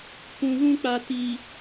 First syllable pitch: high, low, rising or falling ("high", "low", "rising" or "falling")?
low